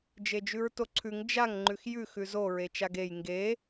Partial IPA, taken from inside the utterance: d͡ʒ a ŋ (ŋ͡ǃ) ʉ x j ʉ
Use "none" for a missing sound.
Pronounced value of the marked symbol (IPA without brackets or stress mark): ŋ͡ǃ